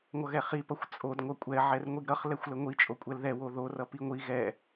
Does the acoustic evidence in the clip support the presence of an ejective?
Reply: yes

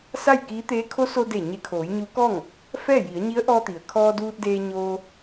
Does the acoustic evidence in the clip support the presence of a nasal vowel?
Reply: no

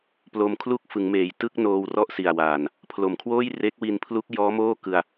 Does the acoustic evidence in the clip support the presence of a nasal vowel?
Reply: no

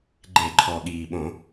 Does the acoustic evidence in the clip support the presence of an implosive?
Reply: yes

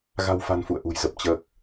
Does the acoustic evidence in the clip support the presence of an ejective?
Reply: no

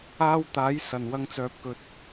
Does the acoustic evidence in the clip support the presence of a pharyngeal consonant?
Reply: no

